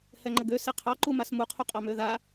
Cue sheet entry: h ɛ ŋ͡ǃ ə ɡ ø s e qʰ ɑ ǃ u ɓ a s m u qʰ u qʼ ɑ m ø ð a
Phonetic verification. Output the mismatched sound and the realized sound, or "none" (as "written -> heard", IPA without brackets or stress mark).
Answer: ɓ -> m